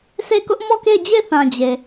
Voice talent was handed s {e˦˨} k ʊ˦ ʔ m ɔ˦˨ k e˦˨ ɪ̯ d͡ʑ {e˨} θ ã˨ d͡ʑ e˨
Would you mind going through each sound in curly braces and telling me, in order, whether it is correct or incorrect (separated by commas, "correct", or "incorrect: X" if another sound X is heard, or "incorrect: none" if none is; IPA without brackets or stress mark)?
correct, incorrect: e˦˨